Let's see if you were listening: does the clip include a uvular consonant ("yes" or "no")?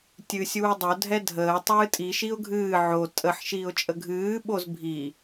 no